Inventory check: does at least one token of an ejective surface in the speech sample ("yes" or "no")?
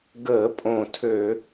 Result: yes